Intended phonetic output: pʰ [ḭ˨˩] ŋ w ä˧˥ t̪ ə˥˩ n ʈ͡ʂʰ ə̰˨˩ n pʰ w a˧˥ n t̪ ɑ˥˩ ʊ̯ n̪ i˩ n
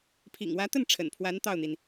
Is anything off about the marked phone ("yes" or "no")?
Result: no